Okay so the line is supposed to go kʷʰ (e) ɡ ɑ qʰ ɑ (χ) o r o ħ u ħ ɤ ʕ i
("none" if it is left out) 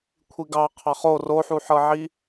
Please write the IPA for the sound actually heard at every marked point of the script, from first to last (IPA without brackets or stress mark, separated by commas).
i, χ